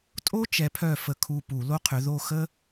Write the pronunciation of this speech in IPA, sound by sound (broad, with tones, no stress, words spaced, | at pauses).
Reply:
tʼo˥ t͡ʃɛ˨˥pʰœ˦˨ fə˦˨kʰu˦˨pu˧˩˧ lo˥qʰʏ˨˥ ðo˦˨xə˥